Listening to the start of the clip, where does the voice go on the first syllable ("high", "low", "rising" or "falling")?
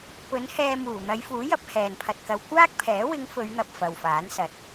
rising